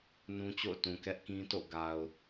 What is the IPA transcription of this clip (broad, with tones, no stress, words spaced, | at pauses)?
nũ˦t͡ɕo̰˦˨ʊ̯tũ˨ kɛ˦ʔkĩ˦to̰˦˨ ɡa˨ʊ̯